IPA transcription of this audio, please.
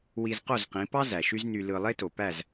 w i˧ z q o˥˩ z q ĩ˩˥ p ɑ˥ z æ˩ ʃ y˥ z n y˧ l ɯ˧ lˠ e˥ t o˩ p æ˥˩ z

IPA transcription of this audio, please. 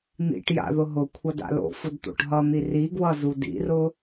n̪ ḭ ʈ j a̰ ð ʊ ɦ ʊ kʷʰ ʌ d a̰ l o̰ f ʊ d t̪ o̰ ʈ ɦ ʌ n̪ i r i ɡ w ʌ z u d ḭ r ʊ

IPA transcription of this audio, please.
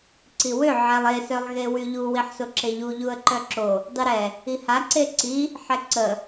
ǀ i w ø ʕ ɛ lˠ e s œ lˠ ɣ e w y ʎ u w i ħ s o ǁ e ʎ u ʎ u ə̯ ǃ œ ǁ o | dˤ y ɾ ɛ | i h a ǀ e ǀ i | ħ ɛ ǀ ə

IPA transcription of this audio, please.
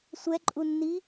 sʷ ɛ ǃʼ u nː i

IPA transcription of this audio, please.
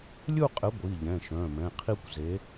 lʲ u˥˧ qʼ ɘ˨˥ ɡʷ i˩˧˩ ʎ ɛ̃˩˧˩ ʃ œ̃˩˧˩ m ɛ̃˩˧˩ qʰ i˥˧ kʷ z e˨˥

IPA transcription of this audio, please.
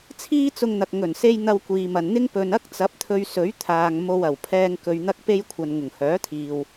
t͡sʰ iː˥ t͡s ʊ˧ ŋ n̪ ɐ˨ k̚ ŋ ɵ˨˩ n s e˧ j n̪ ɐ˧ w kʷ iː˨ m ɐ˨ n n̪ ɪ˥ ŋ p ɵ˨ n ɐ˥ k̚ t͡s ɐ˨˥ p̚ t̪ʰ ɵ˧ ɥ s ɵ˨˥ ɥ t̪ʰ aː˨ ŋ m o˧ w ɐ˨˩ w pʰ ɛː˧ ŋ k ɵ˨ ɥ n̪ ɐ˧ k̚ p e˧ j kʷʰ ɐ˨ n ŋ ʊ˨˩ ŋ h œː˨˥ t̪ʰ iː˨ w

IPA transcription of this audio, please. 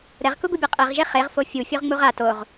ɾ ɛ ʁ k u ɡ u bʲ ɤ qʼ e ʁ ʒ e χ e ʁ f o fʲ u fʲ o ʁ ŋ͡m u ʁ a t o ʁ

